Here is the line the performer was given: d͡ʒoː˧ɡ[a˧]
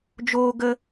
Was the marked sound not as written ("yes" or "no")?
yes